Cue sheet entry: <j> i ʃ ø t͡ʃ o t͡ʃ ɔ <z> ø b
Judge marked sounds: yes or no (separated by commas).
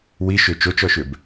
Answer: no, no